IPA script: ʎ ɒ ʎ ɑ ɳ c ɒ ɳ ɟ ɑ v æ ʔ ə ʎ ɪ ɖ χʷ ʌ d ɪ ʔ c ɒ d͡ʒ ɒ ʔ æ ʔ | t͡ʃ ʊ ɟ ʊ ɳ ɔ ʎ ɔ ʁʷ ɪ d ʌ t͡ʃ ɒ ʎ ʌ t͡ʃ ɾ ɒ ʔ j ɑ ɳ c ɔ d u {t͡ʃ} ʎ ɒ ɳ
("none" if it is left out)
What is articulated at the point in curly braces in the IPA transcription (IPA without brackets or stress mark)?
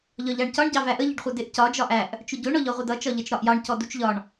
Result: t͡ʃ